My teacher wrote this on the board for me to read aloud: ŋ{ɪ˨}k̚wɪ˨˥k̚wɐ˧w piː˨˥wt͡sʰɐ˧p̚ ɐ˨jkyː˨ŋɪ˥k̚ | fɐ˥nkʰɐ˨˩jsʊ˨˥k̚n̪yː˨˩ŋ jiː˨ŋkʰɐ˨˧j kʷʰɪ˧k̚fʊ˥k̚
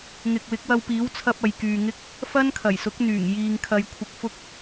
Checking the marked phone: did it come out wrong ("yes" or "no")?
no